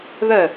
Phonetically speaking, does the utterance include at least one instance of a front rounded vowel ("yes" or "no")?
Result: yes